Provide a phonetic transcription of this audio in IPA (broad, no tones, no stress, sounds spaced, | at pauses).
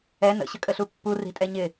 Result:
ɛ n ə̰ ɕ ə kʼ ə ɬ u pː u r i̤ tʼ ɛ ɲ ɪ